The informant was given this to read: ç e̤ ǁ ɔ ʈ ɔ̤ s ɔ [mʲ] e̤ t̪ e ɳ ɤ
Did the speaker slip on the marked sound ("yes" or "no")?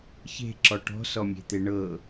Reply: no